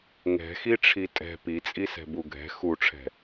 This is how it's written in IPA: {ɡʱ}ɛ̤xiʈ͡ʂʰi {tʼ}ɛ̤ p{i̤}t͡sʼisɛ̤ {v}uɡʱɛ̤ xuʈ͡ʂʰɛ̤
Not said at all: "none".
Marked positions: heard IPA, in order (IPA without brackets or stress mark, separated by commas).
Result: ŋ, tʼ, i, b